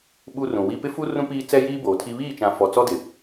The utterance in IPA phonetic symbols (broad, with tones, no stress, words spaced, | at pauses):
ɓu˦rũ˨wi˦ pɪ˦fu˦ rũ˦piː˦ t͡sɛ˦jiː˦ boː˨tʰi˦ βiː˦˨t͡ʃã˨ fɔ˨t͡sɔ˦dɪ˨